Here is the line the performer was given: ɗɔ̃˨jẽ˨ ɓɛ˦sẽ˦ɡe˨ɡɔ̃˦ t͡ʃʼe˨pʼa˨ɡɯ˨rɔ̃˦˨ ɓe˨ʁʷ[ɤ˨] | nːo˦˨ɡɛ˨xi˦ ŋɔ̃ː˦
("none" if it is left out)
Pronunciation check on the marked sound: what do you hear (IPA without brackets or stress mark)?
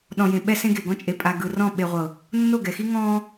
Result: ɤ˨